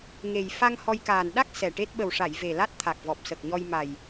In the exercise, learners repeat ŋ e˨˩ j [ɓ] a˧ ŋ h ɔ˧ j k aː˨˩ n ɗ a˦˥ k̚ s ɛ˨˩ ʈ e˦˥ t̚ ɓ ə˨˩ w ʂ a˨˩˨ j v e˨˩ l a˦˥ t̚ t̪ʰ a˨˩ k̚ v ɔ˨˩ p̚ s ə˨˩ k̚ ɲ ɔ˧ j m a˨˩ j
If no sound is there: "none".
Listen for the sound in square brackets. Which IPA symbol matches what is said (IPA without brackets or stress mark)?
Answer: f